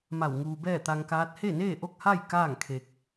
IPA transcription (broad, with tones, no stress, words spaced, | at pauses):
ma˧˩w ŋuː˧bɛː˥˨t̪a˧ŋkaː˧˥t̚ he˥˨neː˥˨ ʔo˥˨k̚ha˥˨j kaː˥˨ŋkʰe˧k̚